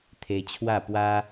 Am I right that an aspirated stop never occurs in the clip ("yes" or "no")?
no